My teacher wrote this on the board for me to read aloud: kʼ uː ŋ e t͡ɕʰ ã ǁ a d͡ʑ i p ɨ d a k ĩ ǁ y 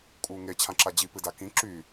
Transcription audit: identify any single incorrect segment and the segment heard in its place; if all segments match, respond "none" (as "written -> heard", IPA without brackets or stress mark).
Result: none